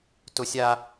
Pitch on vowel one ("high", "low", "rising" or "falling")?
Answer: high